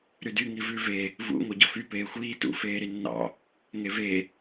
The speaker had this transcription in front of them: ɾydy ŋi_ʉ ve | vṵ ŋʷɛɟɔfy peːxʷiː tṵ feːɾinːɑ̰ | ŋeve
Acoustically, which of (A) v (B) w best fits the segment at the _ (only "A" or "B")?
A